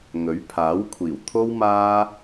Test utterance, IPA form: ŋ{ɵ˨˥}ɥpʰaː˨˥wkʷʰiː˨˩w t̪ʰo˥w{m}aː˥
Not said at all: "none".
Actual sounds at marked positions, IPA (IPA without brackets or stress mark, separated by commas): ɵ˨˥, m